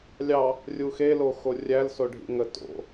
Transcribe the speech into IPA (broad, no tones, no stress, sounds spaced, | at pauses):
lʲ ɑ | rʲ u x e l o x o rʲ æ l s o ɖʱ ḭ ŋ ə t o̰